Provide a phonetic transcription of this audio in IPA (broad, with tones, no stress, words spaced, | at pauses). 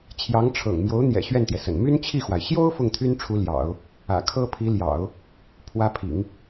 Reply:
t͡ɕʰjɑ˧˥ŋʈ͡ʂʰɤ̰˨˩ŋ mjo˧˥ʊ̯ n̪jɛ̰˨˩ ɕɥɛ˥˩nt̪jɛ˩ sə̰˨˩n my˥n t͡ɕʰi˥˩xwa˩ɪ̯ ɕjo˥ʊ̯ fʊ˥˩ŋt̪ʰy˥nʈ͡ʂʰu˧˥ ljɑ̰˨˩˦ʊ̯ | ä̰˨˩kʰɤ˥pʰi˧˥ljɑ̰˨˩˦ʊ̯ | pʰwä˧˥pʰḭ˨˩˦ŋ